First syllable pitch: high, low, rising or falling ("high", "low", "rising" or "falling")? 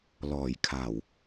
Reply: low